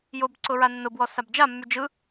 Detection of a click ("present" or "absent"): present